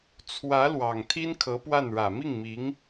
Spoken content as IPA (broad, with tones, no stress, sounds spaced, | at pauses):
t͡sʰ w ä˧˥ l w ɑ˨˩ ŋ t̪ʰ i˥ n kʰ ɤ˧˥ p w a˥˩ n ɻ ä˨˩ m i˥˩ ŋ m i˧˥ ŋ